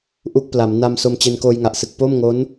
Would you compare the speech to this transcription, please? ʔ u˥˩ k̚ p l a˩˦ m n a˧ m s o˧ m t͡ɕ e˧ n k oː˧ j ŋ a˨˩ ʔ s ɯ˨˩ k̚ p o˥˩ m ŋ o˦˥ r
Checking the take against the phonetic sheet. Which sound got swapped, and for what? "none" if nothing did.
r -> n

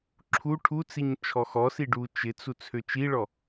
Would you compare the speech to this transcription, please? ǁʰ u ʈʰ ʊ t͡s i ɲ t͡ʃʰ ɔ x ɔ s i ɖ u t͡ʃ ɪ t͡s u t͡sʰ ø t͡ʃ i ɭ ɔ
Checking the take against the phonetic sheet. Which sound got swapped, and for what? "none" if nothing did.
ʊ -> u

